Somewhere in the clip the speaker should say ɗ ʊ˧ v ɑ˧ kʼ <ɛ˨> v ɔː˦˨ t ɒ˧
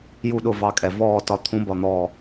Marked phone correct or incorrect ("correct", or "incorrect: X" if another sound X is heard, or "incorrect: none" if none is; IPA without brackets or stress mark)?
correct